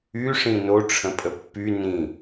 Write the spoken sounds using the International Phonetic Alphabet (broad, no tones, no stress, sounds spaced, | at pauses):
y ʂ ĩ n o ʈ͡ʂʰ ə̃ pʼ ə pː y n ĩ